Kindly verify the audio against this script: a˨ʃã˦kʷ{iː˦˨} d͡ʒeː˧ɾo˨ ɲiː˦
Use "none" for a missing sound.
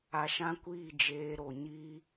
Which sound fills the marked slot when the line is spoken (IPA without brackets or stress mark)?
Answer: iː˦˨